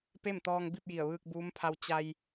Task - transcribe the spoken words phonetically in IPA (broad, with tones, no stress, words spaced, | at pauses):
pe˥˨mt̪ɔː˧ŋbi˥˨p̚ ji˧˩ə̯ʋɯː˧k̚buː˧˥mpʰa˧w t͡ɕa˧j